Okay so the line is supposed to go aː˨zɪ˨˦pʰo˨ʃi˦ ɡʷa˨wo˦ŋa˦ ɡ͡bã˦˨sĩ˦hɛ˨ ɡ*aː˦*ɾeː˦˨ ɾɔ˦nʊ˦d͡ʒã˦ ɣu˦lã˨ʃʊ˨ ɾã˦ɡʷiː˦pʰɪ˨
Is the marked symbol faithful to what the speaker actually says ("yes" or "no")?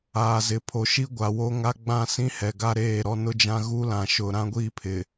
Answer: no